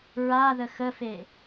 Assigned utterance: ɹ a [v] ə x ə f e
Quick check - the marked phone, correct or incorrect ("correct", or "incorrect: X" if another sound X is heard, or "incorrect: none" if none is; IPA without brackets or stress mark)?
incorrect: ð